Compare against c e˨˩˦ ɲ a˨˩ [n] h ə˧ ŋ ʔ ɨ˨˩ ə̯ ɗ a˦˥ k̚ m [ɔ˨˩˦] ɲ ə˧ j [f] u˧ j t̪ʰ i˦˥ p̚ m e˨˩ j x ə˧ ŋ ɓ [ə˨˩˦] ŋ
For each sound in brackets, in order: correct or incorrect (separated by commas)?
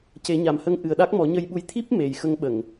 incorrect, correct, incorrect, incorrect